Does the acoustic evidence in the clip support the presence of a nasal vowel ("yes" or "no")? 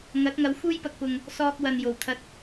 no